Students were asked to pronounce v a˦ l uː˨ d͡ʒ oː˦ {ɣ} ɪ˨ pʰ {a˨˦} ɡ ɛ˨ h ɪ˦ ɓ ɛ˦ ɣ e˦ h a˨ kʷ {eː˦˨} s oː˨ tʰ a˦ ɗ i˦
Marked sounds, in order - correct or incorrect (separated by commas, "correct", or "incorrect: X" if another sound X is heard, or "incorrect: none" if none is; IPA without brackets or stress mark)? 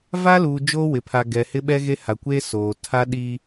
incorrect: w, incorrect: a˨, incorrect: eː˦